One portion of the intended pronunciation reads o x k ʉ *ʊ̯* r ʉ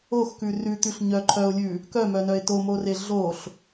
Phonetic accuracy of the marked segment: incorrect: none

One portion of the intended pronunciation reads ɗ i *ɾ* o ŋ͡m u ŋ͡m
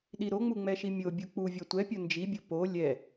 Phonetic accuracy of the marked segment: correct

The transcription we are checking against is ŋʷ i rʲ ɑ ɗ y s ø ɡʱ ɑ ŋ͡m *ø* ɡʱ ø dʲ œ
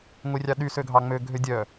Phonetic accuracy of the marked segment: correct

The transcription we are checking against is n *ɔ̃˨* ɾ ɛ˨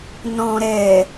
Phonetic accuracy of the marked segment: correct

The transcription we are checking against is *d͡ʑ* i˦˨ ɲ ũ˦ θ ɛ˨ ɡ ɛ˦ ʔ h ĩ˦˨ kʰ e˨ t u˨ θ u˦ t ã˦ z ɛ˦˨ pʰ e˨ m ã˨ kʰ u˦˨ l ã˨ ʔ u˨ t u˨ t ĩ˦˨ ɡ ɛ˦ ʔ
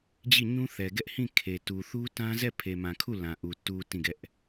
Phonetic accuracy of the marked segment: correct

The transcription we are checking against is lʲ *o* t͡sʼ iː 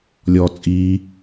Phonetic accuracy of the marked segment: incorrect: ɔ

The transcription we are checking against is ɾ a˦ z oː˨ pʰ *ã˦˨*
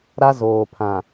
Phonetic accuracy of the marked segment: incorrect: ã˨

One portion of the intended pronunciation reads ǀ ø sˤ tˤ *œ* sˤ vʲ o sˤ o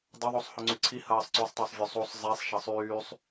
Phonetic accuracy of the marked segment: incorrect: ø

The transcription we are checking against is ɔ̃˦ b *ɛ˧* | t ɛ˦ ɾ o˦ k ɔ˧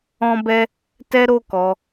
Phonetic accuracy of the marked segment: incorrect: ɛ˦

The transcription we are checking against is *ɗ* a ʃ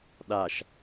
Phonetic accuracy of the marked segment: correct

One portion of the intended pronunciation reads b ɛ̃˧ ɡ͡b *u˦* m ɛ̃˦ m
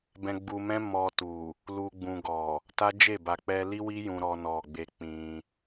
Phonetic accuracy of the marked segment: incorrect: u˧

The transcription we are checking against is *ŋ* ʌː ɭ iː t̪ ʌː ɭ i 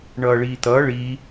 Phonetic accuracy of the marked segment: incorrect: ɳ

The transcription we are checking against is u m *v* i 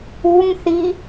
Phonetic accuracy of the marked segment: incorrect: θ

